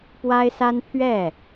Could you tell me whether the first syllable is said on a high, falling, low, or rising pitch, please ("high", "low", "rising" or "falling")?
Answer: high